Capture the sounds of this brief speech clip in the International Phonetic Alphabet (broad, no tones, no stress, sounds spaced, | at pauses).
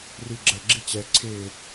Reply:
r i ɡ͡ǁ ə ɡ͡ǁ i t͡ɕ ɛ ǀʰ ɪː